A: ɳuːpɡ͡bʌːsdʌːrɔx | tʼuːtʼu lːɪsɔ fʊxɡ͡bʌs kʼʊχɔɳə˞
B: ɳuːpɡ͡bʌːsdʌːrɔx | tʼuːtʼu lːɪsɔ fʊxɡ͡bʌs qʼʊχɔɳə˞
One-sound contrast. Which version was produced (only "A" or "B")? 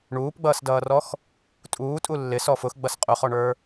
B